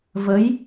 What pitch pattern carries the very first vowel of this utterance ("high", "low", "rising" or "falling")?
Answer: rising